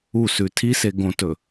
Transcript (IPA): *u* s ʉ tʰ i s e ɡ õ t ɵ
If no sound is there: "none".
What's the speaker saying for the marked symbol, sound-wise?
u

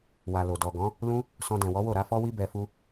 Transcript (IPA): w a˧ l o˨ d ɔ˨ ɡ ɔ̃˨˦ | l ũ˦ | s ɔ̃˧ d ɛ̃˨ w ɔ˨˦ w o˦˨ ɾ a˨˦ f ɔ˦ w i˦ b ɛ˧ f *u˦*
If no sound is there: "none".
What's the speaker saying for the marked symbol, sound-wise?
u˦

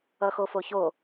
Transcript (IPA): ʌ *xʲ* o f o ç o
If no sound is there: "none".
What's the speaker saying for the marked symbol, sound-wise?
x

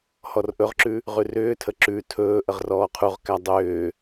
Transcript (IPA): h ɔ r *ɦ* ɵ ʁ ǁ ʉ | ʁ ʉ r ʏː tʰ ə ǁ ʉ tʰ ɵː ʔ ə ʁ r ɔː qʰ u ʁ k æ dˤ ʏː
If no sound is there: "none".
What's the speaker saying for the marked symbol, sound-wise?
ʔ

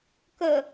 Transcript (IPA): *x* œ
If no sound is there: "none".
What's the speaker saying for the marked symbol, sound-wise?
k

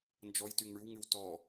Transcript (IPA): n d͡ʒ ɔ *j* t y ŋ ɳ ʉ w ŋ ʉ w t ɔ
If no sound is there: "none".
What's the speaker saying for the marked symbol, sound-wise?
j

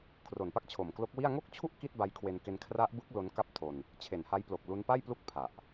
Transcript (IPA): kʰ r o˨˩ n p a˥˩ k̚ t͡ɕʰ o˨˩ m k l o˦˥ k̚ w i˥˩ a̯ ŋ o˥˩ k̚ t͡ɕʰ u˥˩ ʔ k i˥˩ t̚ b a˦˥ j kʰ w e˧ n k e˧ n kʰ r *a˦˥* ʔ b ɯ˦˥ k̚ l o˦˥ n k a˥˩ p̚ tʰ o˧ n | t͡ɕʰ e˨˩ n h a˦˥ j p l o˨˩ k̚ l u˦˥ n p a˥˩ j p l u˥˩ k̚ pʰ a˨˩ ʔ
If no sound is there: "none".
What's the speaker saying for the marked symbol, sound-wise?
a˦˥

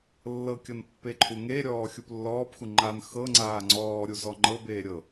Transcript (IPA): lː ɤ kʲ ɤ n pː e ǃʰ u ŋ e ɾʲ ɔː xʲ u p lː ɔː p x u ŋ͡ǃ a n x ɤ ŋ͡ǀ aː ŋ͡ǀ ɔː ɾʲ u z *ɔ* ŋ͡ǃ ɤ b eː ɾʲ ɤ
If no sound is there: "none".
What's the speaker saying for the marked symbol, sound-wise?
ɔ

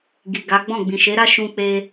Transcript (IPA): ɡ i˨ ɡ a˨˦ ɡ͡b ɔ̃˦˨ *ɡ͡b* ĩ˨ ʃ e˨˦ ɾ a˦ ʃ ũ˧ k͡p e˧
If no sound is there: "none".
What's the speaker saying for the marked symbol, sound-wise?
ɡ͡b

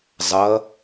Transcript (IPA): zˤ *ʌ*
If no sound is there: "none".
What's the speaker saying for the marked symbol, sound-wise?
ʌ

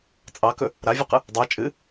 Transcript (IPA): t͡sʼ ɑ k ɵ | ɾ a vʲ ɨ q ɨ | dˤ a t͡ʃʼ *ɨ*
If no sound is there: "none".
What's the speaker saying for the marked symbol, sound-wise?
ɨ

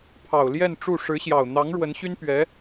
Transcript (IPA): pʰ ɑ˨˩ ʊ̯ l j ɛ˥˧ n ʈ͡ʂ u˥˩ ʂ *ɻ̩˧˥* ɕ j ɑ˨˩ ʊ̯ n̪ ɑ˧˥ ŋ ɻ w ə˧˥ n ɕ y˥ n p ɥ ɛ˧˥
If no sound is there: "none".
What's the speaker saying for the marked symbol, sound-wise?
ɻ̩˧˥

